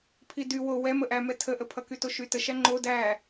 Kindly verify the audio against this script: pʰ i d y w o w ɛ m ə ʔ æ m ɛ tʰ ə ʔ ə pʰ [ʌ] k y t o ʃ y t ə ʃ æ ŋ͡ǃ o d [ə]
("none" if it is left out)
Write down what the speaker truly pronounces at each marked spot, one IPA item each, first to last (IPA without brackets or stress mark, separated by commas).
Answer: ʌ, æ